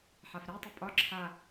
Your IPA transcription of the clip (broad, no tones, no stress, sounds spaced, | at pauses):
ħ a f ɾ e tˤ u pʼ ɒ ǁʰ a